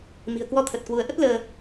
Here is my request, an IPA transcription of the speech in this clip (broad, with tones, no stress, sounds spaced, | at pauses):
m i̤˨˩ ə̯ k w ɔ˧ t̪ʰ ə˨˩ t̚ k w u˨˦ ə̯ ʔ ə˦˥ t̚ l əː˧